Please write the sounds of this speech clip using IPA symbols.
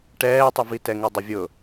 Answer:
ʈ ɛː tˤ u v i t ɛ ŋ u dˤ ɪ vʲ ʊ

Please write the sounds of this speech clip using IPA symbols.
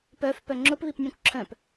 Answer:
p œ f p œ ŋ͡ǁ ʊ p β i p nʲ œ̃ kʷ ǁʰ œ̃ p

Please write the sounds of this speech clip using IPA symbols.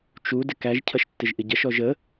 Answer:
t͡ʃ u d ɪ k æ ʒ cʰ ʌ ʃ tː ɪ ʒ ʔ ɪ ɟ ʌ ʃ ɔ ʒ ə

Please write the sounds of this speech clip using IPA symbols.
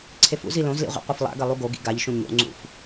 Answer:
ǀʰ e f ṵ z i l õ z l ḭ ʁʷ ḭ qʷ e f lˠ a̰ ɡ ɐ lˠ u ɡ o ɡ ḭ ɡ a ʎ ʃ ũ ɲ o̰ ŋ͡ǀ ṵ f

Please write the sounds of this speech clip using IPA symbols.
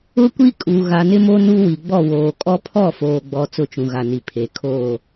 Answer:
ʊ˦ kʷ i˦ kʼ u˨ ɣ a˨ n ɪ˦ m o˦ n u˦ w i˨ ɡ͡b ɔ˦˨ w oː˨ kʼ ɔ˦ pʰ ɔ˦˨ f oː˨ ɡ͡b ɔ˨ t͡s ʊ˦ t͡ʃ ũ˨ ɣ a˨ n i˨ pʰ e˨ kʰ oː˦˨

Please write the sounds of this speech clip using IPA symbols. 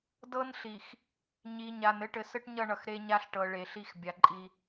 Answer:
d ɤ˦ n ɬ i˨ x | ɲ i˨ ɲ a˨ n ɘ˦ ʈ ɘ˨ s ɘ˦ ʈ ɲ ʌ˦˨ ɳ ʌ˨ x ɾ e˦ ɲ a˦ ɬ ʈ ɤ˨ ɭ e˨ ɬ i˦ x bʲ a˨ ǃʼ i˦

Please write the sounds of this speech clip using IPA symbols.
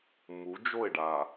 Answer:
m u˨˦ d͡ʒ o˦˨ ɪ̯ ɖ a˨

